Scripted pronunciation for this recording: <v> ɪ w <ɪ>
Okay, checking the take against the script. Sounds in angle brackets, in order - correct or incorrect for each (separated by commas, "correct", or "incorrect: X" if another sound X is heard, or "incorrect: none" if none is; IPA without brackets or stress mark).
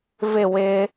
correct, correct